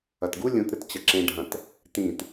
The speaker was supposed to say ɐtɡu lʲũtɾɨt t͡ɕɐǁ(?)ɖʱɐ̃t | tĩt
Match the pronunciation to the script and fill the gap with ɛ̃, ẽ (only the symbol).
ẽ